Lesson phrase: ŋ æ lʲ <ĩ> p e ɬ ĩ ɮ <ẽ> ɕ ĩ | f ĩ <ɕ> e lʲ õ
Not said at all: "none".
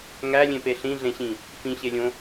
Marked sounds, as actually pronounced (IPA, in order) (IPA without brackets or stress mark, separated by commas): ẽ, ẽ, ɕ